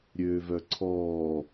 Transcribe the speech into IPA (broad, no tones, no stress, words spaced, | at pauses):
ɾʲøːvœǀʰɔː